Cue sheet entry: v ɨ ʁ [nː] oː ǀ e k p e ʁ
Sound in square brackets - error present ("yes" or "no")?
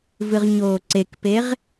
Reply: yes